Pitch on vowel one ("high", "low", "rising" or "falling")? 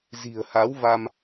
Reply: low